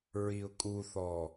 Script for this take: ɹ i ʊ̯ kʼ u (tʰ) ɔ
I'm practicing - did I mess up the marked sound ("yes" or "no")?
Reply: yes